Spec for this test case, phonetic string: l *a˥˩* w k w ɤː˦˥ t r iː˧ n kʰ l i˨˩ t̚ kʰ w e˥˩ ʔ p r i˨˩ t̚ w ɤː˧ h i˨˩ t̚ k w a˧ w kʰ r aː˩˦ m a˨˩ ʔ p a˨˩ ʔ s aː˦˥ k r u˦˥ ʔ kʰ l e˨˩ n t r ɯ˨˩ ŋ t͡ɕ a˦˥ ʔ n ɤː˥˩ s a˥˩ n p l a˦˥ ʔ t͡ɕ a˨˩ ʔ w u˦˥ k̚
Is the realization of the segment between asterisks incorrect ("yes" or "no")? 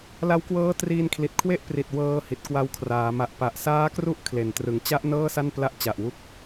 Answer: yes